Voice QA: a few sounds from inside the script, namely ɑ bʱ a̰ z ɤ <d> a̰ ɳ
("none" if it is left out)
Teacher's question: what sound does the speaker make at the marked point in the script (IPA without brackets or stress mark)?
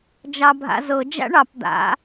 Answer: d͡ʒ